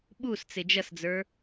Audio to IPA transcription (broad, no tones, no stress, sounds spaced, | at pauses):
ɓ u s t͡s ɪ d͡ʒ ʌ s d͡z ə˞